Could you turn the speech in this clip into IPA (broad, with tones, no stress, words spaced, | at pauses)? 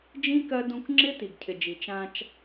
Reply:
d͡ʒĩ˦ kɜ˦ dũ˦k ŋ͡ǁɪ˦ ti˨ɡcʰɪ˨d͡ʒi˨ t͡ʃã˦t͡ʃ